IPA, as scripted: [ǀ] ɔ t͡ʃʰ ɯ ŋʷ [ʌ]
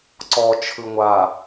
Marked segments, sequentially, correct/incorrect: correct, incorrect

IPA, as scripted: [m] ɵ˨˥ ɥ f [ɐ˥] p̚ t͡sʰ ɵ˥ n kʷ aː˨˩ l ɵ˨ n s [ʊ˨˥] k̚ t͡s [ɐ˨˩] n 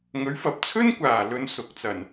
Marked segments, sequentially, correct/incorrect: incorrect, incorrect, correct, correct

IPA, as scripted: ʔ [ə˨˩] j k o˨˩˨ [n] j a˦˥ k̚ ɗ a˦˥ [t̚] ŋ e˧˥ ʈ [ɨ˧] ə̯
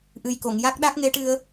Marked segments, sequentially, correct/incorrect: incorrect, incorrect, incorrect, correct

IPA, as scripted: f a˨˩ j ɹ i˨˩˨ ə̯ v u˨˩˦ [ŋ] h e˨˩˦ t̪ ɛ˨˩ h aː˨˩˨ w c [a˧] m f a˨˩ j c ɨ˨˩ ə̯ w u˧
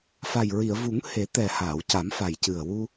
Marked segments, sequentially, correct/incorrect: correct, incorrect

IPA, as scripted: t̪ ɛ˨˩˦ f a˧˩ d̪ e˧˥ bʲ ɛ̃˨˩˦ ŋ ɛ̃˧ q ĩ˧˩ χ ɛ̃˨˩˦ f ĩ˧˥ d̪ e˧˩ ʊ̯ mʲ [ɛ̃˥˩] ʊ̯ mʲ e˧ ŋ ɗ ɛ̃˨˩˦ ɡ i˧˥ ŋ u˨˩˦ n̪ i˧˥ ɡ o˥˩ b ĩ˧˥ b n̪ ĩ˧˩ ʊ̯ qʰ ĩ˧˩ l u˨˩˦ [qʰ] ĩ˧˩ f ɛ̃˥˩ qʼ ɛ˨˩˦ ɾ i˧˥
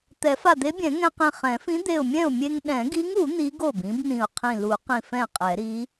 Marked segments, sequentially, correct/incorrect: correct, incorrect

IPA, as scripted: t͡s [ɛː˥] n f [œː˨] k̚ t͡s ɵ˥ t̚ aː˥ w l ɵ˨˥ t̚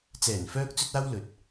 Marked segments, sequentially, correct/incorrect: incorrect, incorrect

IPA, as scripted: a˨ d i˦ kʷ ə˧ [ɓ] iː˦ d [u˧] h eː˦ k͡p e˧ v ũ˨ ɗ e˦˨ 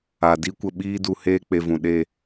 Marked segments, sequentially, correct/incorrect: correct, correct

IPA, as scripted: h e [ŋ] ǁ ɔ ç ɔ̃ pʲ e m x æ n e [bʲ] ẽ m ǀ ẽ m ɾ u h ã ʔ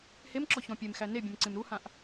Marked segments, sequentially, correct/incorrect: incorrect, correct

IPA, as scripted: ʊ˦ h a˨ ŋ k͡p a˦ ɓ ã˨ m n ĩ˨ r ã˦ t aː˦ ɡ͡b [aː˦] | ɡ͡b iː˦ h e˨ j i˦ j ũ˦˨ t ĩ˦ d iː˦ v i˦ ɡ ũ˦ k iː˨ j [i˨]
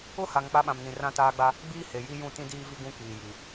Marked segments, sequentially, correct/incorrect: incorrect, correct

